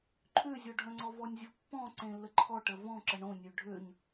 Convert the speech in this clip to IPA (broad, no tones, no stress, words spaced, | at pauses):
ǃʰøzʲɔɖʱœ̃ŋ͡ǀɔ vɔnʲzʲopːɔ̃ ǀẽlːəǃʰɔʈə vɔ̃ǁə ɳõnʲø ɖʱøɲ